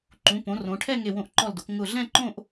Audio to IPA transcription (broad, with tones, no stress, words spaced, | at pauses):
ǃũ˩˧põ˩˧ rõ˩˧ʈʰɛ˥˧ ŋe˧˩wõ˧˩ʔǃɔ˧˩ldo˩˧k ŋʊ˧˩ɮɛ̃˥˧ǃõ˥˧ʔ